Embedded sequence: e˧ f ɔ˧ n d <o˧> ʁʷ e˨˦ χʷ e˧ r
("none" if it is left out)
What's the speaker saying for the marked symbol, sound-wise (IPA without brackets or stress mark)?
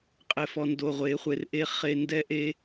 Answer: o˧